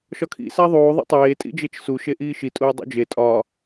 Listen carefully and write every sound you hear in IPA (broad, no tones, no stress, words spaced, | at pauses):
ʃɒkʰḭ sæðˤuː ðˤḭtˤeː tʼḭd͡ʒet͡ʃsu ʃeʔiːʃi tʼuːdˤṵd͡ʒe tʼɒː